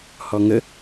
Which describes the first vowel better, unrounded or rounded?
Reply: rounded